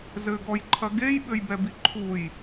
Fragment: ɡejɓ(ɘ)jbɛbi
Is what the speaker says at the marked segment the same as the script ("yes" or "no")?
yes